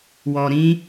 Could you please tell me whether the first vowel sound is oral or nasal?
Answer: oral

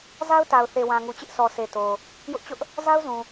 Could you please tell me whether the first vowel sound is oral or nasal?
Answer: oral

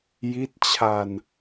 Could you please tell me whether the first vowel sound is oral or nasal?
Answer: oral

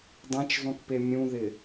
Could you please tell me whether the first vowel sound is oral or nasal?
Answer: nasal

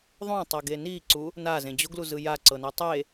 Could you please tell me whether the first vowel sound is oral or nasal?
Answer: nasal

